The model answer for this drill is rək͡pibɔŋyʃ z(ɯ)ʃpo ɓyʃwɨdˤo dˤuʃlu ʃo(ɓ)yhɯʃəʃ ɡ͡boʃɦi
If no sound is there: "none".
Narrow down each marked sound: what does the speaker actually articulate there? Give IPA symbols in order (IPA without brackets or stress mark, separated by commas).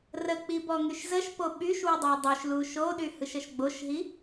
ə, ɗ